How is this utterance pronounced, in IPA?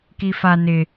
k i f a n ɪ

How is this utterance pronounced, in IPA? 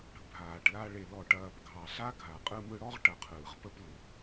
ɽ ə̤˧ bʱ aː˨ ʈ l a˧ ɭ e˨ l ɔ˨ ʈ ɐː˨ p ɡʱ ɑ˨ ɬ a˦ ɡʱ a˨ qʼ ɯ˧ m ɯ˧ ɽ ɔ˦ ʁ ʈ ɐ˧ qʰ ɯː˨ ʁ p ə˦ p l ʊ˨ p

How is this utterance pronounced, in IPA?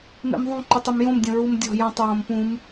m ḛ m ðˤ ũ ǃ u tˤ e m j õ m dʲ õ ɹ u m dʲ ɔ̤ j õ tˤ ɹ õ m p ũ m

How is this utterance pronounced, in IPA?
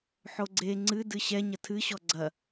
ħ o ɡ͡ǀ e ŋ͡ǀ ɨ d ɨ ɕ ɛ ɲ ɐ tʰ ɨ ɕ ɔ ɡ͡ǀ ɐ

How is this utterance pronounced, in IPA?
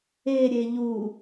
e ɾʲ e ʎ u

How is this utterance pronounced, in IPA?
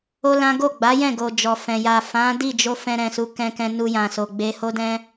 o˦ l ã˦ ɡ o˦˨ ɡ͡b a˨˦ j ɛ̃˦˨ ɡ o˨ d͡ʒ ɔ˨ f ɛ̃˨ j a˨ f ã˨˦ d i˦˨ d͡ʒ o˧ f ɛ̃˧ ɾ ɛ̃˨ s u˨˦ k ɛ̃˧ k ɛ̃˧ n u˧ j ã˨ s o˨ ɡ͡b e˨ h o˧ d ɛ̃˧

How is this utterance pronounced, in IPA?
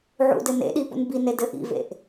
ʕ ṵ d ɘ n ḛ ɗ i p ṵ n b i n e d ɘ ʔ ḭ v ḛ ʔ

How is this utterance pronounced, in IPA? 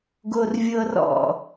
ɡ o r vʲ ɤ r ɔ̰

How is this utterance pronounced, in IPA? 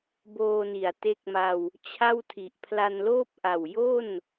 b oː˧ n i˩˦ a̯ t e˦˥ k̚ m a˧ w | t͡ɕʰ a˥˩ w tʰ i˨˩ ʔ pʰ l a˧ n l oː˥˩ p̚ ʔ a˨˩ w j o˥˩ n

